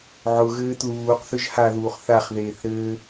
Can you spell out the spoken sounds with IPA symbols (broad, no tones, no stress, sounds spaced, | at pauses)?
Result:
ʕ ʊ ɣ ɘː t l uː q θ ʏ ʒ h a ð uː χ θ a χ ð eː θ ɾ ɘː